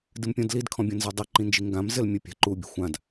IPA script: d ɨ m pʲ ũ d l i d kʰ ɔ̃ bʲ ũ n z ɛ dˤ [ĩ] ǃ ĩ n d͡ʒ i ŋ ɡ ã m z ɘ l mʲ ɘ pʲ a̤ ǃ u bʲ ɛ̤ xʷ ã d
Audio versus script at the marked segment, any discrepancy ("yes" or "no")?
yes